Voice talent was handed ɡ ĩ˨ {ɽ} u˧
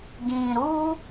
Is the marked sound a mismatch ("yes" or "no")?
yes